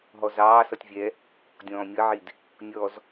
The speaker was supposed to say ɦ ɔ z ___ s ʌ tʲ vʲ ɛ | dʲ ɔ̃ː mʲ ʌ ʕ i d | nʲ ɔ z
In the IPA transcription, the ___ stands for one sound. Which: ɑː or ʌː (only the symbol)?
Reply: ɑː